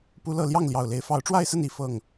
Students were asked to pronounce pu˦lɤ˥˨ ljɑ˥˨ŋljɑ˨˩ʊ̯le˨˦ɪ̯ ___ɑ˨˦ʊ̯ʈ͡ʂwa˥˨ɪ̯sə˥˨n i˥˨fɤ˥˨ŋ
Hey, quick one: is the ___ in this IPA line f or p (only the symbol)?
f